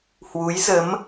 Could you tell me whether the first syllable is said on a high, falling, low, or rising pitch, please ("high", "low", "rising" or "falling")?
rising